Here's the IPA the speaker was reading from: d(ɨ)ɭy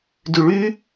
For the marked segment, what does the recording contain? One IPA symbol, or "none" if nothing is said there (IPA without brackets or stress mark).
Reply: y